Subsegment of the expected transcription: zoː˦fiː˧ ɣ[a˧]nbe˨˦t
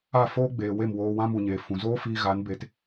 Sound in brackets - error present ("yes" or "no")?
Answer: yes